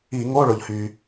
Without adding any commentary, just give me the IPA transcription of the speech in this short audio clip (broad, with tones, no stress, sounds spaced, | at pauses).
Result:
i˧˩˧ ŋ o˧˥˧ ɭ ʊ˩ ʎ h y˩